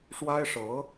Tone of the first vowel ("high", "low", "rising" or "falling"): high